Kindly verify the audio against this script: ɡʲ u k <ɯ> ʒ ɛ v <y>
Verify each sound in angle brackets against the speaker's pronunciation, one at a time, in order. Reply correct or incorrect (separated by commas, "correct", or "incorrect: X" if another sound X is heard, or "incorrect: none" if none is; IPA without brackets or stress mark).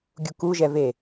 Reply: incorrect: u, incorrect: e